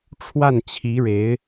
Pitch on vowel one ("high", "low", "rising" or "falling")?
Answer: falling